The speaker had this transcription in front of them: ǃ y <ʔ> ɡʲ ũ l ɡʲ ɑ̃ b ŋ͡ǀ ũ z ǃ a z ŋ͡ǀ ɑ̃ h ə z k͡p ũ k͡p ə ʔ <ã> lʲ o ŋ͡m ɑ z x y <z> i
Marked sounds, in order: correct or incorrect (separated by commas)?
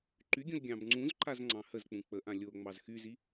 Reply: incorrect, correct, correct